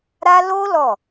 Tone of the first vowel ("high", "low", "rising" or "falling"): high